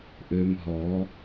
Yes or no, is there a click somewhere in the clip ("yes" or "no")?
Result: no